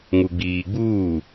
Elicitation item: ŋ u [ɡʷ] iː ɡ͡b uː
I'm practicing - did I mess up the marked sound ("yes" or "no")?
yes